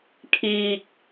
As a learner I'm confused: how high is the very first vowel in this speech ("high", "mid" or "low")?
high